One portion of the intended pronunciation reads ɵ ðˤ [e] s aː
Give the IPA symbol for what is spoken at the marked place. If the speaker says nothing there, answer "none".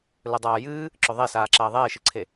e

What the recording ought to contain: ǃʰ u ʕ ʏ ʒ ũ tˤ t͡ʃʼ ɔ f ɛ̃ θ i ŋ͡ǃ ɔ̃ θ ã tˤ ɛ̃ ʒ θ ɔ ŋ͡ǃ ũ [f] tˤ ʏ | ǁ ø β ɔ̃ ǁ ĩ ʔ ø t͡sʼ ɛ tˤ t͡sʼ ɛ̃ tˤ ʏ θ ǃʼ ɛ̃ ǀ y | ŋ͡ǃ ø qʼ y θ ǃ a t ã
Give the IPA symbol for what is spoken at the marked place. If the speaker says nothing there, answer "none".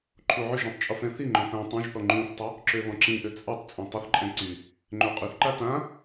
θ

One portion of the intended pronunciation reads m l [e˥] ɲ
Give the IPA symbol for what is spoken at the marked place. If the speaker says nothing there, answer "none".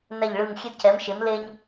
e˧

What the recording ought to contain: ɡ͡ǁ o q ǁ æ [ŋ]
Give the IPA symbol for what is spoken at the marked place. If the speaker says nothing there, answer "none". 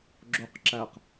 q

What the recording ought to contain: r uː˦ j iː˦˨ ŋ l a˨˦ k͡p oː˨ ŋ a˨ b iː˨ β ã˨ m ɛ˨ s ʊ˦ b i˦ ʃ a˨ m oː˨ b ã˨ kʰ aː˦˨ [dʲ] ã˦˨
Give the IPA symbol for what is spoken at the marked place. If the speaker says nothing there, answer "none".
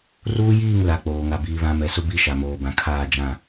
d͡ʒ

